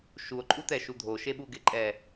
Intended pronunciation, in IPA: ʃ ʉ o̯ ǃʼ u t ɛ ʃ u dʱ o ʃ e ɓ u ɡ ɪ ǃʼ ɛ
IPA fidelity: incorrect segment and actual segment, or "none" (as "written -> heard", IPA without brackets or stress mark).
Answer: ʉ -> u